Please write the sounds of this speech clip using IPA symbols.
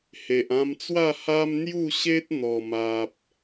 he˨ʔã˧mt͡swa˥˧ ha˦m n̪ju˥˧ɕe˦t̚ n̪ɔ˨˩ma˨p̚

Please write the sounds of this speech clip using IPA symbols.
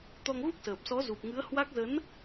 t̪ɔ˧ŋ ɣu˦˥k̚səː˨˩p̚sɔ˨˦ zu˨˩p̚ŋɨ˨˦ə̯ hwa˦˥k̚ zə˨˦n

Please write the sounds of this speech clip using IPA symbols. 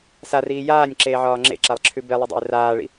sariː jaːnʲ ǁeːʕɒːŋ͡ǁḛǁalˠ ǁʰʉbelˠə dˤɛ̰ɪ̯raːɭḭ

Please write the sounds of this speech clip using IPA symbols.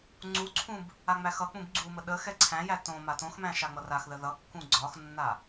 ŋ͡ǀuǀʰũb | aŋ͡mæxʌk͡pũb ɡ͡ǀumə ɗə xɛǀʰæ̃jæ tõma tõxmæ̃ ʃaŋ͡mʌraxðə ðʌkːũ ɡ͡ǀɒxnːa

